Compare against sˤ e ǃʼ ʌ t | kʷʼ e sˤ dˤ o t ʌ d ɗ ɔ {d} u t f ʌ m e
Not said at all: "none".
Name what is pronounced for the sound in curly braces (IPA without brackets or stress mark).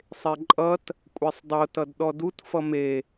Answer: d